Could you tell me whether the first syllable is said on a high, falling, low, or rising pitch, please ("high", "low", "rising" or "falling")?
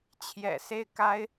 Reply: low